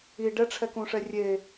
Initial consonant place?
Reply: retroflex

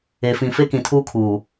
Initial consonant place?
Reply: labial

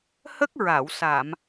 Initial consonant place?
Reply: glottal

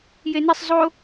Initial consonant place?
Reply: palatal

